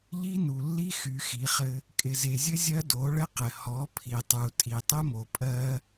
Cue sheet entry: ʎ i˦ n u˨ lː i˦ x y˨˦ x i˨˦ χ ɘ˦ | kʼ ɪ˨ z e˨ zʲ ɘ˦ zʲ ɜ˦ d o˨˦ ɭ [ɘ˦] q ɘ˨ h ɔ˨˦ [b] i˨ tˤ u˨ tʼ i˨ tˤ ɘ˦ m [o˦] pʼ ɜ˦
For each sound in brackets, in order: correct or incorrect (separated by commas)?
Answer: correct, incorrect, incorrect